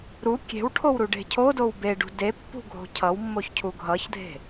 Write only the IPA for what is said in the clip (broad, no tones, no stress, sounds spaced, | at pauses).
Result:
ɾ u kʲ e̤ w ʈʰ o w ɾ u ɖ e̤ cʰ o d o w b e ɖ ṳ d e pː ṳ ɡʱ o̤ cʰ ʌ w mː o ç cʰ u ɡʱ ʌ ç dʱ e̤